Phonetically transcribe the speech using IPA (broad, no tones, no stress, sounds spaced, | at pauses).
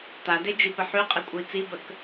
t̪ a d e d͡ʒ i p ə ħ y qʼ i kʷʼ ə i̯ t͡s i b ə k